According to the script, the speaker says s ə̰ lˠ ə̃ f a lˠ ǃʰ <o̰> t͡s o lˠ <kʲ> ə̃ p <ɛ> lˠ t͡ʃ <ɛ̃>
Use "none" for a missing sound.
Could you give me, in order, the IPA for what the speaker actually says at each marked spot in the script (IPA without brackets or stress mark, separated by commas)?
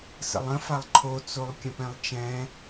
o, kʲ, ɛ̃, ɛ̃